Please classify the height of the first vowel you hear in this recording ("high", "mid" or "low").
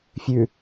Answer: high